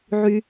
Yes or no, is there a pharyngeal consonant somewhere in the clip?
yes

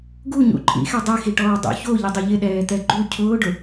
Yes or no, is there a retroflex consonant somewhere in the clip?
yes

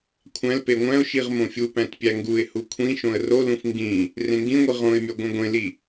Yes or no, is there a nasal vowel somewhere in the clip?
yes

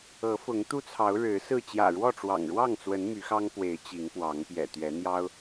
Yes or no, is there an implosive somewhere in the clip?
no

